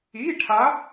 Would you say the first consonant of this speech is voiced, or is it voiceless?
voiceless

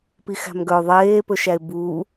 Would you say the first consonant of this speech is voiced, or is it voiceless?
voiceless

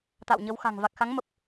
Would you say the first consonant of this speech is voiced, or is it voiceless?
voiceless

